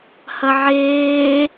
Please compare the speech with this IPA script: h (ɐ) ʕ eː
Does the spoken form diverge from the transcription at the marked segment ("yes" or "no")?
no